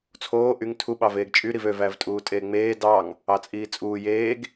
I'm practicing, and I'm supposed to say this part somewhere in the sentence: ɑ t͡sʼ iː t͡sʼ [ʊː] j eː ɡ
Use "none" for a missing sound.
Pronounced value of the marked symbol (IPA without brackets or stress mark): uː